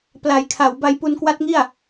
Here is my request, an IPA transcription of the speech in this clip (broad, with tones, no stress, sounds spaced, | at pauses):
p l a˩˦ j kʰ a˩˦ w b a˧ j p u˧ n k w a˦˥ t̚ ŋ i˥˩ a̯